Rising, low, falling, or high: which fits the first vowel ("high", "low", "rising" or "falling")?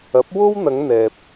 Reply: rising